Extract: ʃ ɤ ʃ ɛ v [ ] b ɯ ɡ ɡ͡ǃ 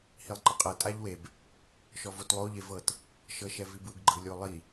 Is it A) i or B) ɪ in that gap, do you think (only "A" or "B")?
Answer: A